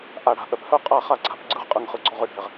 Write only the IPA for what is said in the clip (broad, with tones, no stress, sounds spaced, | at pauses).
ʔ a˧ ɽ a̤˧ ʔ œ˧ p h œ˥˧ qʼ a˥˧ χ a˥˧ ǀʰ a̤˥˧ p ɡ͡ǀ ɯ˥˧ ʁ qʼ ɯ˧ ŋ χ ɯ˧ ɡ͡ǀ ɔ˥˧ ʁ ɯ˥˧ ɖʱ ɛ˧ ʁ